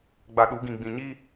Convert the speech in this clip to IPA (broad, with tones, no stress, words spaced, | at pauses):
ɡ͡ba˨ ɗu˨˦ɡĩ˨ ɡ͡bĩ˨ɲiː˦